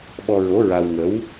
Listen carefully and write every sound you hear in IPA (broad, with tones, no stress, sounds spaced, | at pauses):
ɓ ɔ˧ ɹ o˧˥ ɹ a˧ w ŋ ə˧˥ w